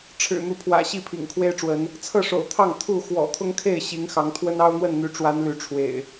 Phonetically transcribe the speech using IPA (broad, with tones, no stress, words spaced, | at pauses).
ʈ͡ʂʰɻ̩˨˩n̪u˨˦pʰwä̰˨˩ ɕi˥˨pʰḭ˨˩ŋkʰwe˦ɪ̯ʈ͡ʂwə˨˦n | t͡sʰɤ˥˨ʂo̰˨˩ʊ̯t̪ʰɑ˥˨ŋ t̪ʰu˥˨ xwɔ̰˨˩t̪ʰʊ˦ŋkʰe˥˨ɪ̯ ɕi˨˦ŋ xɑ˨˦ŋt̪ʰwə˦n ɑ˦ʊ̯n̪wə˥˨nn̪y˨˦ʈ͡ʂwa˨˦n ly˨˦ʈ͡ʂʰwḛ˨˩ɪ̯